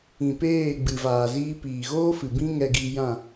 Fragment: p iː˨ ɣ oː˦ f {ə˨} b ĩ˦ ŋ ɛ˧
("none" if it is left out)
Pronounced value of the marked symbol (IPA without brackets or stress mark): ɨ˨